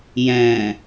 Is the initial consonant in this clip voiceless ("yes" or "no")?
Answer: no